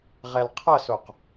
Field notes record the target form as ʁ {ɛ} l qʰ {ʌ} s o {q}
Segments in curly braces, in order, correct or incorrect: correct, correct, correct

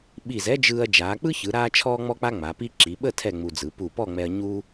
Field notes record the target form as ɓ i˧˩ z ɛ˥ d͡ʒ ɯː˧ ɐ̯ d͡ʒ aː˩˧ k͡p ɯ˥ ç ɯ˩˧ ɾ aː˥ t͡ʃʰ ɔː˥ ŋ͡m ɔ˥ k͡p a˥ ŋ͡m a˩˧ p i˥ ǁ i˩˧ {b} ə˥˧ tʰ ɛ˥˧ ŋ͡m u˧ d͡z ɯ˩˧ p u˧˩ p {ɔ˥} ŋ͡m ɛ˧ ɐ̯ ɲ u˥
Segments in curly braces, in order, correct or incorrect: incorrect, incorrect

